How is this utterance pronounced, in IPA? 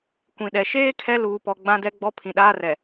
kʷ ĩ˨ ɗ ɛ˨ ʃ eː˦ kʰ ɛ˦ l uː˨ p ɔ˨ ɡ͡b ã˦ d ɛ˦ ɡ͡b ɔ˦ pʰ ĩ˨ ɗ aː˦ r ɛ˨

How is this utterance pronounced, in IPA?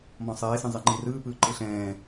m ɔ̃ sˤ eː s ĩ zˤ e ŋ͡ǃ i r ɯː p ɯː ǃ ɯ ɬ ɛ̃ː

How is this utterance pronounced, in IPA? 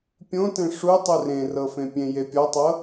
pʲ õ t ẽ ʂ u tˤ u r ẽ r ɤ f ẽ pʲ ẽ j e pʲ ɔ tˤ ɤ

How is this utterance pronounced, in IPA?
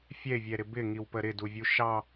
fʲ ɛ ɪ̯ vʲ ɛ ɾ ɪ b ɪ ŋ i w p ə ɾ ɪ d u vʲ u ʃ ɑ

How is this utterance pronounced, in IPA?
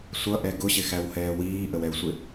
sʷ ʌ ʔ ɛ ɡ ʊ ɕ ɪ x æ w h ɛː w iː ʔ ə w ɛ u̯ sʷ ɪ

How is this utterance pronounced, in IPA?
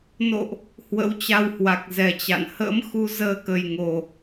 n o̰˧˨ ʔ | h w ə̰˧˥ w t͡ɕ a˧ w h w a˨˩ k̚ z ɛ˨˩ t͡ɕ a̰˧˨ n h ə̰ː˧˥ m x u˨˦ z əː˧ k ə˨˩ j ŋ o˨˩

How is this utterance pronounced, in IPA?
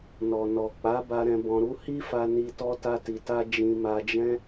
n ɔ˨ n ɔ˨ k͡p a˨˦ b a˧ ɾ ɛ̃˧ b ɔ̃˧ ɾ u˦ h i˦ f a˧ n i˧ t ɔ˦ t a˦ t i˧ t a˦ d͡ʒ ĩ˧ m a˧ d͡ʒ ɛ̃˦

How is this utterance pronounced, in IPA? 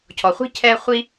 cʰ ɔ˩ χʷ i̤˥ cʰ ɛ˧ χʷ i˥

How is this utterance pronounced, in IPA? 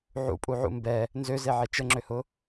ʕ ṵ pʼ u ʕ ṵ m b ɛ | n z ø z e ʕ e t͡ʃ ə ŋ͡ǁ ø h ʊ

